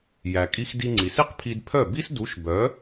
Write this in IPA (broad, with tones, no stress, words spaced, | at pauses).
jæ˩kʼi˧x di˧ŋ͡ǀi˩si˥q pʰi˧dpʰœ˥˩ bi˥sdu˩˥ʃ bœ˩˥